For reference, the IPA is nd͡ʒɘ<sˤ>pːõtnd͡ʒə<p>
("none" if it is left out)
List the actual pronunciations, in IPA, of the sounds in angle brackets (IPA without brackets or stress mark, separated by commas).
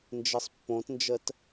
sˤ, t